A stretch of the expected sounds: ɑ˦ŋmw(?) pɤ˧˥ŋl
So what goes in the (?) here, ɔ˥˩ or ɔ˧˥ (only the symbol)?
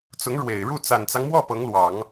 ɔ˥˩